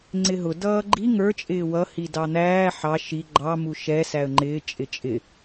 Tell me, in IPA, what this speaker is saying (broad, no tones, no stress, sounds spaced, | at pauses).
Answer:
ŋ͡ǀ ɪ ɦ ʊ d ʌː ɡ͡ǃ i ŋ ə˞ t͡ʃʼ ɪː w ʌ h i d ɑ n̪ æː ħ ɑ ʃ i ɡ͡ǃ ɑ m u ʃ ɛ s æ ə̯ ŋ͡ǃ ɪː t͡ʃʼ ɪ t͡ʃʼ ɪ